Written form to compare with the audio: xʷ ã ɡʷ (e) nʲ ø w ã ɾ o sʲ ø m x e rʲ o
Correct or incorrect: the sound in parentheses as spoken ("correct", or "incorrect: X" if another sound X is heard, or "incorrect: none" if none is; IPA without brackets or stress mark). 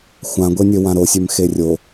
correct